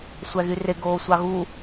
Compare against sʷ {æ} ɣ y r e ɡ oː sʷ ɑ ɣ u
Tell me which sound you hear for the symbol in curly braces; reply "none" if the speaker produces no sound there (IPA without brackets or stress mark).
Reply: æ